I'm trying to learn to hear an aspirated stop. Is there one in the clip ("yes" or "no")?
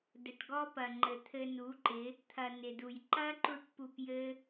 yes